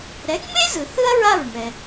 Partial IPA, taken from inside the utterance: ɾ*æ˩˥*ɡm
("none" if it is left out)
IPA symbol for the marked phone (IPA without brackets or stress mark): ɛ˩˥